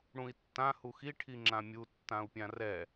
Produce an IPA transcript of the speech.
ɽ ũ i̯ tː ã h u x i ʈʰ i ŋ͡ǁ ã mʲ u tː ã u̯ pʲ ã r ɛ

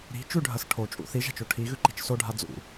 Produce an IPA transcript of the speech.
ɾ i̤ t͡ʃ ʉ ɖʱ ɐ s ʈʰ o t͡ʃʼ ṵ θ i ʒ a̤ t͡ʃ o ʈʰ i ɣ ʉ ǃ i̤ t͡ʃ s o ɖʱ a d͡z ṵ

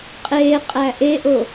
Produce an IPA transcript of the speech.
qʼ e qʼ æ ʔ e ʔ o

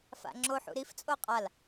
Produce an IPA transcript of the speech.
f a̰ ŋ͡ǁ o ħ ṵ ɾ i f t͡sʼ o qʼ a l

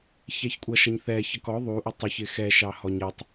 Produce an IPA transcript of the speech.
ç ɛ ç kʷʼ ʌ ʃ ʌ ɲ θ ɛ ç ʌ k ɔ ðˤ u ʔ ʊ tˤ ʊ ç ɪ x ɛ ʃ ɑ h ɔ ɲ ə tˤ

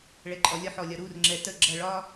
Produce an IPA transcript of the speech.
ɭ ɛ ǃʼ ɔ lʲ ɒ ħ ɔ lʲ ɒ ɾ u r ŋ͡ǁ ɛ t ə ɡ͡ǁ ʌ ɭ ɒ

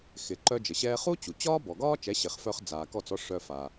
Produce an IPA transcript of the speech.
x ɪ˩ ǃ œ˧ d͡ʒ ə˩ ɕ ɛː˧ χ u˥ t͡ɕ u˩ t͡ɕ ɒː˥ b ɔ˩ ɡ ɒː˥ t͡ʃ ɛ˩˥ ɕ ɪ˩ χ f œ˧ χ d͡z aː˩ k ɔ˥˩ t͡s ɔ˥ ʂ œ˧ f a˩

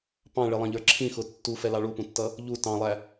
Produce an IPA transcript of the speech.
p ɑ̃ ɭ ɪ lˠ ɑ̃ ʎ ə˞ ǁʰ ĩ x ʊ tː u f ɛ l ɑ ɭ u p ũ tː ʌ | ʎ u t ɑ̃ lˠ æ

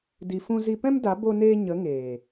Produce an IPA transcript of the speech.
d i˧ f ũ˧ z i˧ p ɛ̃˦ m d a˨˦ b o˧ n eː˧ ɲ ə˨˦ ŋ eː˨

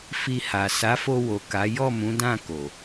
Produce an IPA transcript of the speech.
f i˧ h a˨ s a˨˦ f o˧ w o˨ k a˨˦ j ɔ˦˨ m ũ˨˦ d ã˦˨ k o˨

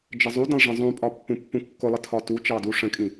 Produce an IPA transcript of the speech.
d͡ʒ ə zˤ u d ə̃ lˠ ʐ ə̃ zˤ ũ pʼ ɒ pː ũ pː ũ kː ʊ lˠ ə tʰ ɒ t u t͡ʃ ɑ d u ʂ ə̃ kʼ ĩ

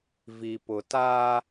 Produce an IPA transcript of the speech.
v i˨ p ʊ˨ t aː˦

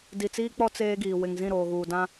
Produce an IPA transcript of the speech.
d i˨ t͡s iː˦ k͡p ɔ˦ t͡s eː˦ ɡ iː˨ w ɪ˨ ŋ z ĩ˦˨ ɾ oː˨ ɣ uː˨ d ã˦

